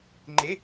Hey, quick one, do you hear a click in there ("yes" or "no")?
yes